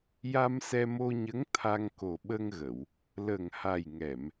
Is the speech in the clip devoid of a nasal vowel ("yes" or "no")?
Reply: yes